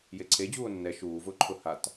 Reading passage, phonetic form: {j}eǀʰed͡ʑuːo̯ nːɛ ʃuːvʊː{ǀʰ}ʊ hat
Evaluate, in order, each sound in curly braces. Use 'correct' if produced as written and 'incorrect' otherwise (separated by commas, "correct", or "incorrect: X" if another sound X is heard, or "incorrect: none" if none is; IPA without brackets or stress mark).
correct, incorrect: ǃʰ